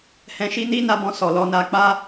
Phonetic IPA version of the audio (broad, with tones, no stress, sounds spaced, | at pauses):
h ɛ̃˧ ʃ i˦ n i˦ n a˧ b ɔ̃˧ s ɔ˨ l ɔ˧ n a˧ k͡p a˦